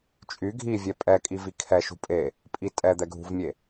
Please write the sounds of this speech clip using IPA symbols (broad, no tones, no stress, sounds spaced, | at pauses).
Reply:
t͡ʃʼ y ɡʱ i vʲ ɛ pʼ ɛ kʼ i v i kʰ ɛ ʃ ṳ pʼ e | pʼ i tʼ ɛ d̪ ɛ ɡʱ ṳ v mʲ e